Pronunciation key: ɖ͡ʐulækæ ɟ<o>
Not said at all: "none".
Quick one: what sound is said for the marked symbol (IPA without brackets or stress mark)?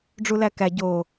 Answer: o